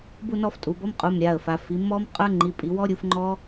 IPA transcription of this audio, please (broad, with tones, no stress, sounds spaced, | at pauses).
b u˥˧ n ɔ˥˧ f tʼ u˩˧ b ɔ˧˥˧ m qʼ u˩˧˩ m ɾʲ a˩˧˩ ə̯ f a˩˧ f i˩˧ m ɔ˦˥ m qʼ ə˞˦˥ ŋ͡ǃ i˩˧˩ pʼ i˩˧ w ɔ˦˥ ɾʲ u˩˥ f ŋ͡ǃ ɔ˦˥